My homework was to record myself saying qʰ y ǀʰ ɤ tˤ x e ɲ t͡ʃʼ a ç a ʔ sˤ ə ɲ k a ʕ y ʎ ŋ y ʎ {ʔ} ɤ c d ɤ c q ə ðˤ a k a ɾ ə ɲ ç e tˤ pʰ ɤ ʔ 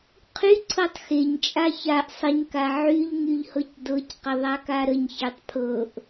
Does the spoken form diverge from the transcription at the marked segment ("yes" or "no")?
yes